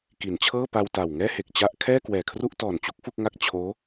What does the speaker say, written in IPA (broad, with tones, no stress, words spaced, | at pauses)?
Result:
ki˩˦nt͡ɕʰɤː˥˩pa˧w ta˨˩w ŋɛː˥˩he˨˩k̚ t͡ɕa˥˩ʔ kʰɛː˥˩kwɛː˨˩kʰru˥˩ʔtɔː˨˩n t͡ɕu˦˥k̚fu˥˩k̚ŋa˥˩k̚ t͡ɕʰoː˦˥